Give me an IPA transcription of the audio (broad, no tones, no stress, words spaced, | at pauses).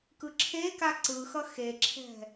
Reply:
kɯǁʰeka ǀɯxʌ xeǁʰɛ̤